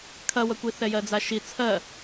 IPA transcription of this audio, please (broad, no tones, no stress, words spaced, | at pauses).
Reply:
kʰɐwɐkʷi θɛjɜd͡zaʃi t͡sʰɜ